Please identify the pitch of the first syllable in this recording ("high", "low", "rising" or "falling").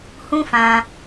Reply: high